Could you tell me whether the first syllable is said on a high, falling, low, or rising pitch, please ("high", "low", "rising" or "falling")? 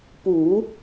low